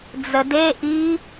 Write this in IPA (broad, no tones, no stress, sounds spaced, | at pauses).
d͡z ə d e ʔ i